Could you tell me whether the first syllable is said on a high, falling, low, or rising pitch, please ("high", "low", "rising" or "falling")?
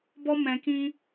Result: high